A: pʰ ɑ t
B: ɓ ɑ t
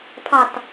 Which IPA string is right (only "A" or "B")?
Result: A